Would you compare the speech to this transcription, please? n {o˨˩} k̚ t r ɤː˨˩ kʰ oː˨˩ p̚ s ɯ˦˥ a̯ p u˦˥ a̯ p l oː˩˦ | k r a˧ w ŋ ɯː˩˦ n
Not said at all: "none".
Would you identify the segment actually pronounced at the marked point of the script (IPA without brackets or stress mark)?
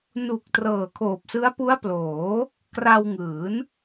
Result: u˨˩